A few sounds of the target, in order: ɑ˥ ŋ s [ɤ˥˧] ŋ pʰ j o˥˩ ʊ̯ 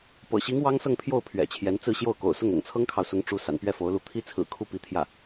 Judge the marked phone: correct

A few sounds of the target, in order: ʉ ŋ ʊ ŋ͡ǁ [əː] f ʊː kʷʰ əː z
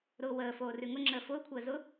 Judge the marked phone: correct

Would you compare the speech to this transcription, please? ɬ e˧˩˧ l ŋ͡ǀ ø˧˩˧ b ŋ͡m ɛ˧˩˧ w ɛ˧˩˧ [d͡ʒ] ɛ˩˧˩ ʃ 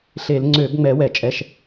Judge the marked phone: incorrect: t͡ʃʼ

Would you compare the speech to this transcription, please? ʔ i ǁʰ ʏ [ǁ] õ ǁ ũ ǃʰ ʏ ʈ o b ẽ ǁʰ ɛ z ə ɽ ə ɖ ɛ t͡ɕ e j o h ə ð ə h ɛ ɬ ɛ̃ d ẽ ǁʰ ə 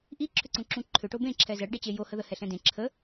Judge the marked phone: incorrect: ǀ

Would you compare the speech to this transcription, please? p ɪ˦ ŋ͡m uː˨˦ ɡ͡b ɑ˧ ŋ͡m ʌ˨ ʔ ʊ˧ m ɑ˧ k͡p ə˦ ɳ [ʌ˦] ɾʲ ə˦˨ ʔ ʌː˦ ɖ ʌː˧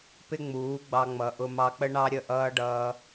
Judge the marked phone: incorrect: ɑ˦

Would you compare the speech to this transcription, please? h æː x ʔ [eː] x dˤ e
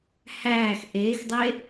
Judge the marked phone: correct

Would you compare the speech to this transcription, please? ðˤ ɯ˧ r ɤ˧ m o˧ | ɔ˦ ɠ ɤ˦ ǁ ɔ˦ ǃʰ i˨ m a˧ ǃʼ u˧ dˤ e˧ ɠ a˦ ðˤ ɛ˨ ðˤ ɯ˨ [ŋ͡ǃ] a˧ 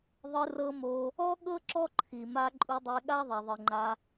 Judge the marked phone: correct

